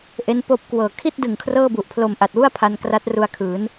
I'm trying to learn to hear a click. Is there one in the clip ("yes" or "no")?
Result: no